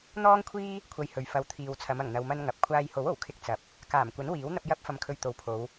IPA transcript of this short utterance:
n̪ ɔː˥ ŋ kʷʰ iː˥ | kʷʰ ɐ˧ j h ɵ˨ ɥ f ɐ˨ w t̪ʰ iː˨ w t͡sʰ ɐ˨˧ m ɐ˨˩ ŋ n̪ ɐ˧ w m ɐ˥ n ŋ ɐ˨ p̚ kʷʰ aː˧ j h o˨˥ w o˨˩ w kʰ ɪ˧ k̚ t͡s ɐ˨ p̚ | k aː˨˩ m kʷ ɐ˨˥ n w iː˨˥ w n̪ ɐ˧ p̚ j ɐ˥ p̚ f ɐ˧ m kʰ ɵ˧ ɥ t̪ o˨ w pʰ o˨˧ w

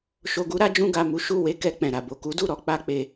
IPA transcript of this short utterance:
ʃ o˨ ɡ u˨˦ ɾ a˦ d͡ʒ ũ˧ ɡ a˨ m u˨˦ ʃ u˦˨ w e˧ k ɛ˧ k͡p ɛ̃˨ ɾ a˨ b o˨ k u˨˦ d u˦˨ ɾ ɔ˧ k͡p a˦ k͡p e˧

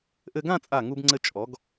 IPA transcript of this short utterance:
ʔ ɘ˧ ɡ ã˥˧ t͡sʼ a˧˩ ŋ u˧ b ŋ͡ǀ ɘ˧ t͡ʃʼ ɔ˩˧ ɡ

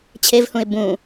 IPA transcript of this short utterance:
t͡ɕʰ e v h ũ ɪ̯ b ũ

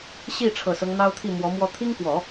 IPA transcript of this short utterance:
ɕ i˥˩ ʈ͡ʂʰ ɤ˨˩ s ɤ˦ ŋ n̪ ɑ˥ ʊ̯ t̪ʰ i˥˩ m w ɔ˧˥ m w ɔ˧˥ t̪ʰ i˥ ŋ k w ɔ˨˩˦

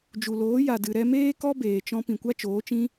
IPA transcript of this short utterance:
d͡ʒ u˨ l oː˨˦ j a˨ d ɨ˨ ɾ ɛ˧ m eː˦ k ɔ˦ b eː˨ t͡ʃ ɔ̃˧ p ĩ˨ kʷ a˦ t͡ʃ oː˨˦ t͡ʃ ĩ˦

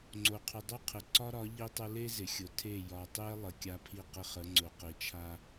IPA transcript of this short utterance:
ŋ͡ǀ o˨ qʰ ʏ˨ dˤ o˦ qʰ ɪ˨ ǀ ɒ˦ ɾ ɒ˨˦ ʎ i˦ tˤ ʊ˦ l e˦ z ɪ˨ xʲ ʊ˨ tʰ e˦˨ j ɒ˨ tˤ e˦ lˠ ə˨ kʲ a˦ pʰ i˦˨ q ɪ˦ χ ə˨˦ ŋ͡ǀ ʊ˨ q i˨ t͡ʃʰ a˦

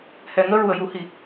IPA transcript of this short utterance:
h ɛ˨˩˨ ŋ əː˧ ɹ u˨˩˨ ə̯ j u˨˩˦ h i˨˩˦

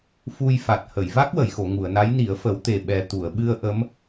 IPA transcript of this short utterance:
f u˧ j f a˨˩ t̚ h ə˨˩˨ j v a˦˥ k̚ w ə˨˩˨ j x o˨˩˨ ŋ u˨˩˨ ə̯ n a˧˥ j n i˨˩˦ ə̯ f ə˨˩˦ w t̪ e˨˩ ɓ ɛ˨˩ t̪ u˨˩˨ ə̯ ɓ ɨ˧ ə̯ ʔ ə˧˥ m

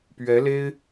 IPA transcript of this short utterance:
p ɥ ɛ˧˥ l e˥ ɪ̯

